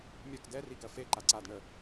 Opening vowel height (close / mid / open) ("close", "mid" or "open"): mid